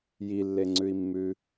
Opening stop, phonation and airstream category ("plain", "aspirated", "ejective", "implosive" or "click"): click